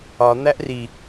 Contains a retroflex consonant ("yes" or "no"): no